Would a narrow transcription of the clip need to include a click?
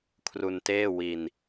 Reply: no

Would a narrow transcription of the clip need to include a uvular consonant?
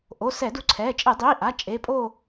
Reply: no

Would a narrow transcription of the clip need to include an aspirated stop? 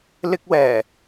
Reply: no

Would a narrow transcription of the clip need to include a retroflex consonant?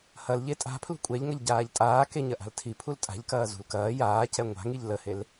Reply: no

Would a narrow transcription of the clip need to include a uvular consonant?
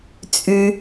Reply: no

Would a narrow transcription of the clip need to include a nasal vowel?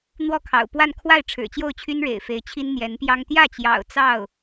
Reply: no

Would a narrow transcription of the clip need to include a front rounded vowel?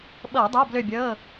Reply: yes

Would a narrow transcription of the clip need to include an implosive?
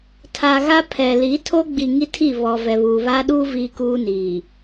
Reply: yes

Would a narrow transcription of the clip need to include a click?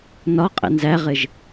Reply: no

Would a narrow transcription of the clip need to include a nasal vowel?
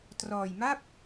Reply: no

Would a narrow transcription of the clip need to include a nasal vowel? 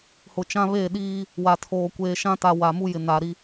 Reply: yes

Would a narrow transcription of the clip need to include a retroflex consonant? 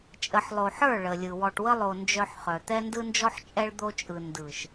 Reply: yes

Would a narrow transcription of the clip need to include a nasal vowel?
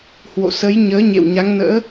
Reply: no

